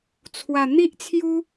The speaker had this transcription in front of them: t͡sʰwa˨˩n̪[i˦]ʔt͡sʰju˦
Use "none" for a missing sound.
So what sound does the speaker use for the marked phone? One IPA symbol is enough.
i˦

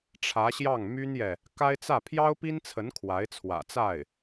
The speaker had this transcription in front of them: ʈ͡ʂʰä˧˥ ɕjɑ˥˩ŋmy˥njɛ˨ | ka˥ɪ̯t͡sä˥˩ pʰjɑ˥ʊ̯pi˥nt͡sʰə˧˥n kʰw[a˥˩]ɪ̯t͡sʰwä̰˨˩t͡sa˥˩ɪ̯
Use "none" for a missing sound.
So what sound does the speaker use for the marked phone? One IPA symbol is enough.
a˧˥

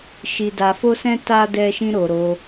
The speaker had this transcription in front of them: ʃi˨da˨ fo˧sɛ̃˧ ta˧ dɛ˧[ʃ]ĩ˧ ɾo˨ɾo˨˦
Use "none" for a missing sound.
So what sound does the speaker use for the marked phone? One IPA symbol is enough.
ʃ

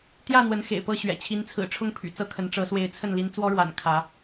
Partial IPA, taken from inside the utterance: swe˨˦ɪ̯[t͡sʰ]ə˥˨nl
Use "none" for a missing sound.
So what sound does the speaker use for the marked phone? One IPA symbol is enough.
t͡sʰ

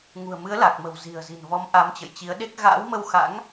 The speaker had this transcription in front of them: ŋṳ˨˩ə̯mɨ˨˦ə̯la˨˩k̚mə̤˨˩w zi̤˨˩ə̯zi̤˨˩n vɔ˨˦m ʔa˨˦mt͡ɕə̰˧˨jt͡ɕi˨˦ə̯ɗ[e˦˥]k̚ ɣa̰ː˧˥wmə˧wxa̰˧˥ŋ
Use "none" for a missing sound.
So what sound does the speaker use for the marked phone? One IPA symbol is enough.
e˦˥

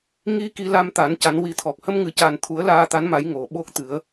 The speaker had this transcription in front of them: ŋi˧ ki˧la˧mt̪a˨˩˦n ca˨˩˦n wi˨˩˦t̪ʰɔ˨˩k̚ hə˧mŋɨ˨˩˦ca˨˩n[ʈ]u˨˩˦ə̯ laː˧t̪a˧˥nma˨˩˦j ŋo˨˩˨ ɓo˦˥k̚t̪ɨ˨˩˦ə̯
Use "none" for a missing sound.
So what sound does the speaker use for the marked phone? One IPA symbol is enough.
t̪ʰ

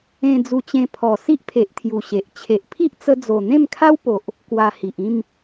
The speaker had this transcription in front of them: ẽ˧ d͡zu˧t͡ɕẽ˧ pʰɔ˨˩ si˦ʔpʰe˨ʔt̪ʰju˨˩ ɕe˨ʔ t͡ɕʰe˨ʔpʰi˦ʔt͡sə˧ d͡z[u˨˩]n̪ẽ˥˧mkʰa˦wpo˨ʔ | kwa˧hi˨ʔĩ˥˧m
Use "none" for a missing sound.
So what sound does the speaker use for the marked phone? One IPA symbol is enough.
o˨˩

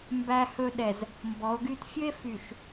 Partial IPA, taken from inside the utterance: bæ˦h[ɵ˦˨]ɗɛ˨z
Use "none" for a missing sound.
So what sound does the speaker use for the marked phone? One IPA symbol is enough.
ɵ˦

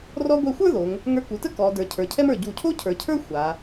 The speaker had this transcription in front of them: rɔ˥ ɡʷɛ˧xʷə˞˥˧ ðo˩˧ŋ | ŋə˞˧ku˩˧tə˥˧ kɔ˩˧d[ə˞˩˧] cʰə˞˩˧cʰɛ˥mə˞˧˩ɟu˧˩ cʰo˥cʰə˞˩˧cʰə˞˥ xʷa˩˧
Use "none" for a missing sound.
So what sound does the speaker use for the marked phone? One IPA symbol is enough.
ə˞˩˧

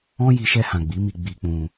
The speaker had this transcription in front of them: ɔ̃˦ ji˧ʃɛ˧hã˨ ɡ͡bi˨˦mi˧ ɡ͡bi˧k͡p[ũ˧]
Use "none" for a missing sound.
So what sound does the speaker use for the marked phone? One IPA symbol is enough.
ũ˧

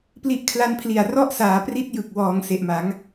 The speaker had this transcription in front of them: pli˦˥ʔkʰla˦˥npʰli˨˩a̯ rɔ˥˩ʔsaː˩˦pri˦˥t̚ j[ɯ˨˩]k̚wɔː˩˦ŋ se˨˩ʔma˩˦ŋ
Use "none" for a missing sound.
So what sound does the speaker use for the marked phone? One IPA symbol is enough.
ɯ˨˩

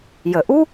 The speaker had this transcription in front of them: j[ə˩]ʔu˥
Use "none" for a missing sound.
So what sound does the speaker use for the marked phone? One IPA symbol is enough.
ə˩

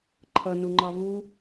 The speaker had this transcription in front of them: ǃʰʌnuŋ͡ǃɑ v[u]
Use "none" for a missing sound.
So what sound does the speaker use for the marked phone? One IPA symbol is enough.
u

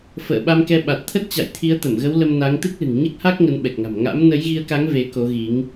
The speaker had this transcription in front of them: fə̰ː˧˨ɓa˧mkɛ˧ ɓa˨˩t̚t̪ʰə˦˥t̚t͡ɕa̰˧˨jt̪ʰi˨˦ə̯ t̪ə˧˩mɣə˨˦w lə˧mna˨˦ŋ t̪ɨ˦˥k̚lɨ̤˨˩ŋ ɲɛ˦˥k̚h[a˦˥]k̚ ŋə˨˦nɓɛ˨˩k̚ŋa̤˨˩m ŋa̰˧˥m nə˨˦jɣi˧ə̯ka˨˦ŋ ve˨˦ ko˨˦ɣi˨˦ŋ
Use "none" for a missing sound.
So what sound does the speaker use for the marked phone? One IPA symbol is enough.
a˦˥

